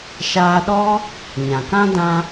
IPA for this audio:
ʃ aː˧ ɗ ɔ˦ | ɲ ã˨ k ã˦ d ã˦

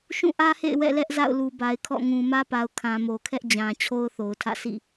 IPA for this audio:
ʃ ũ˦˨ ʔ ä˦ h ḛ˦˨ ɪ̯ w ɛ̰˦˨ l ɛ˦ ʔ z a̰˦˨ ʊ̯ l u˨ b a˨ ɪ̯ kʰ ɔ̰˦˨ ŋ ũ˨ m ä˦ p a˨ ʊ̯ kʰ ã˨ m o˨ kʰ ɛ˦ ʔ d͡ʑ ã˨ t͡ɕʰ o˦ ʊ̯ θ o˨ ʊ̯ tʰ ä̰˦˨ sʰ ḭ˦˨

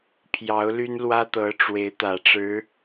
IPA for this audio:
pʰ j ɑ˧˥ ʊ̯ l y˥ n l w ä˥ t̪ ɤ˧˥ ʈ͡ʂ w e˧˥ ɪ̯ t̪ ä˨˩ ʈ͡ʂ ɻ̩˧˥

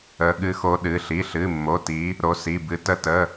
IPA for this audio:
ə˨˦ ɠ ɨ˨˦ x o˨˦ ɗ ɨ˩˧˩ ɬ i˩˧˩ ɬ ɨ˩˧˩ mː o˩˧˩ t i˨˦ | ɾ o˨˦ s i˩˧˩ b ɨ˨˦ t ə˨˦ t ə˩˧˩

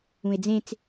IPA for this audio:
ũ e̯ d͡z ẽ t͡s

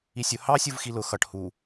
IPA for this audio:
i sʲ ʊ h ɑ sʲ u v x i l ʊ x ʌ ʈ h u

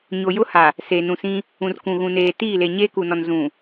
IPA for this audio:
ɲ o˨ j ʊ˦ h a˨ | s eː˨ n ũ˨ s ĩ˦ | ũ˨ r k ũ˨ ɣ ũ˨ n eː˨ t iː˦˨ l e˨ ɲ eː˦ k u˨ n ɔ˨ n z ũ˨

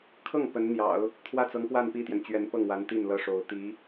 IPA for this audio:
kʰ ɤ˥˩ ŋ p ə˧˥ n n̪ j ɑ̰˨˩˦ ʊ̯ | t̪ʰ w ä˥˩ t͡s ɤ˧˥ ŋ p w a˥˧ n p i˥˩ t̪ j ɛ˩ n t͡ɕ ɥ ɛ˧˥ n p ɤ˥˩ ŋ w a˧˥ n t̪ i˥˩ n l ɤ˥ ʂ o˧˥ ʊ̯ t̪ i˧˥

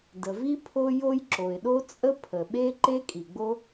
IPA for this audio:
d ə˩ v i˥ pʰ o˥ j o˥ j ǁ o˩ ɪ̯ ɗ o˥ t͡sʼ ə˥ pʰ ə˩ ɓ e˥ ǃ e˥ kʼ i˩ ɡ͡b o˥

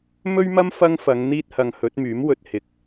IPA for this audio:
m ɵ˥ ɥ m ɐ˥ m f ɐ˥ ŋ f ɐ˨˧ ŋ n̪ iː˥ t̚ h ɐ˧ ŋ h ɵ˨˥ t̚ m yː˨˥ m w ɵ˧ t̚ h ɪ˨ k̚

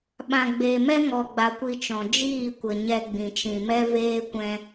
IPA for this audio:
ɓ ã˨ ɡ͡b eː˨ m ɛ˦ ŋ ɔ˨ ɡ͡b a˨ kʷ i˧ t͡ʃ ɔ̃˨ d͡ʒ iː˦˨ kʷ ə˨ ɲ ɛ˧ ɡ͡b ĩ˨ t͡ʃ ĩ˨ m ɛ˦ v eː˦ kʷ ɛ̃˦

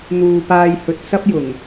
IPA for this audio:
n̪ uː˨ p aː˨ j h ɵ˨ t̚ s ɐ˥ p̚ j ʊ˨˩ ŋ

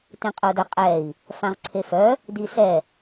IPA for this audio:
t ĩ qʼ o d œ qʼ ɛ i̯ | f ã ʁ ǀʰ e f œ | d i s ɛ

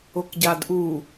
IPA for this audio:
o k ɟ a d ʔ u

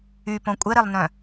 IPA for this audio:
y p õ kʷʼ e ɾ e lˠ n œ̃

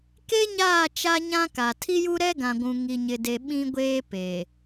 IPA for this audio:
k e˦ ɲ aː˦˨ t͡ʃ a˦ ɲ ã˦ k a˨ tʰ i˦ j u˦ ɾ ɛ˦ ɡ ã˨ ɡʷ ũ˨ ŋ i˨ ɲ ɪ˨ d e˨ ɓ ĩ˦ ɡʷ eː˦ p e˨

